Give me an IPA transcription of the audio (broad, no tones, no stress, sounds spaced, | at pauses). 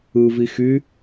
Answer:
ɯ v i x y